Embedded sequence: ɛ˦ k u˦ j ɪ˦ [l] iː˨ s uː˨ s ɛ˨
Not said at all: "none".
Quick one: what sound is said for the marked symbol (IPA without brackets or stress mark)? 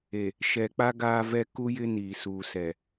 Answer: n